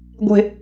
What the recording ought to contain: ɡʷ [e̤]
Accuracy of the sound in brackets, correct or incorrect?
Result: correct